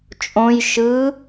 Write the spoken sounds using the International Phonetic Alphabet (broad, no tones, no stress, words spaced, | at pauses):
t͡ʃʼõj ʃɯ